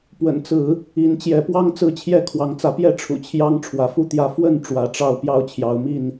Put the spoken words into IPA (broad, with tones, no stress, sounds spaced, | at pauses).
p w ə̰˨˩ n t͡s ɹ̩˨˦ | i˨˦ n t͡ɕ j ɛ˨˦ p w ɑ˦ ŋ t͡s ɹ̩˥˨ t͡ɕʰ j ɛ˥˨ kʰ w ɑ˨˦ ŋ t͡s ä˨˦ p j ɛ˥˨ ʈ͡ʂʰ ṵ˨˩ t͡ɕʰ j ɑ˦ ŋ ʈ͡ʂʰ w ä˨˦ f u˦ t̪ j ä˦ f w ə˥˨ n ʈ͡ʂ w ä˨˦ ʈ͡ʂ ɑ˥˨ ʊ̯ p j ɑ˥˨ ʊ̯ t͡ɕʰ j ɑ˨˦ ʊ̯ m i˥˨ n